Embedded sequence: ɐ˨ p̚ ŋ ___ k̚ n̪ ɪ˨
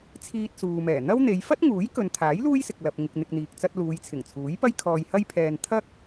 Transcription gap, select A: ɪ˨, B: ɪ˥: A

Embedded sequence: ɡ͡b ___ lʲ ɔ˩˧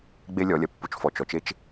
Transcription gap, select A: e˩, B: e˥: B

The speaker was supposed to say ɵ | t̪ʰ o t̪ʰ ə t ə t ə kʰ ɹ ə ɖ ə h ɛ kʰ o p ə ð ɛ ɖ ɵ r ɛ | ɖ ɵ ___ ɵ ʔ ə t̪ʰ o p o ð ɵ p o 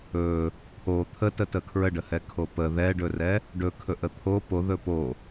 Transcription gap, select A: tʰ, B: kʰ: B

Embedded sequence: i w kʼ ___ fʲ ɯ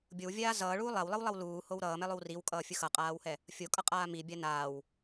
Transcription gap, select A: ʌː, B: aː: A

